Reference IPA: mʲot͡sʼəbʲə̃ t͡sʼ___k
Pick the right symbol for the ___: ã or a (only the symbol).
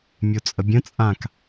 ã